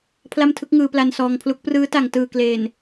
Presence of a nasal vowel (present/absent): absent